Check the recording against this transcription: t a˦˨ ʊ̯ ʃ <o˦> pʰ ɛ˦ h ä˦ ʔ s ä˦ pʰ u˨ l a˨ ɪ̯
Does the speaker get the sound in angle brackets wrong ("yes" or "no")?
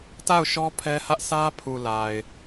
yes